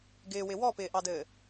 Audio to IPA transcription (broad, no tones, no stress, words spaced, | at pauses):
ɡɪːwɪ wɔpɪːʔɑdɘː